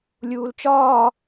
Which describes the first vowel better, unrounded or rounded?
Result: rounded